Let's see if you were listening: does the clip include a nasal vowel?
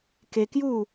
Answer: no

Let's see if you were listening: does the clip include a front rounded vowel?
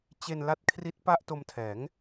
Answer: no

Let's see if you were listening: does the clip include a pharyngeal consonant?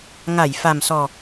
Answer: no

